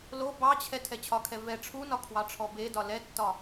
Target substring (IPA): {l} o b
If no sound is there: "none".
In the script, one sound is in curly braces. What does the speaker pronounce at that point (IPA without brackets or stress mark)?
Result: l